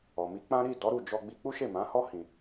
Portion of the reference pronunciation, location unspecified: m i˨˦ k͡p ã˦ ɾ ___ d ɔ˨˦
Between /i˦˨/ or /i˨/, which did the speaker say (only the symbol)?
i˦˨